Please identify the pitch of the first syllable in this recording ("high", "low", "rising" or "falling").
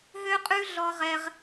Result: high